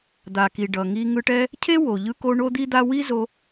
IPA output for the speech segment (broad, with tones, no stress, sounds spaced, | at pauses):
d̪ a˩ k i˩ ɖ ʌ˩ ŋ i˧ ŋ ɯ˧ ʈ ɛ˥ | cʰ e˥ w o˩ ʎ ɯ˧ k o˧ ɳ o˥ d̪ i˥ d̪ a˥ w i˥ z o˧